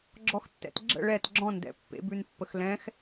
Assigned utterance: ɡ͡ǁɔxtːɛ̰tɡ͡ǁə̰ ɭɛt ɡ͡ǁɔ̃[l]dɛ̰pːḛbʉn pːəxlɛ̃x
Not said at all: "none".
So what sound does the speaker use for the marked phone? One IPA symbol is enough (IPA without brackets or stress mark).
n